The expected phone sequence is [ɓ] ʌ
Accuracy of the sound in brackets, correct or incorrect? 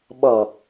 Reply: correct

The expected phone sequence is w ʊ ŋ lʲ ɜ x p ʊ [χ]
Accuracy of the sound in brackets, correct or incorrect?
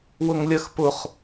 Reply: correct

